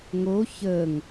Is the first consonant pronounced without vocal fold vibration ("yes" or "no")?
no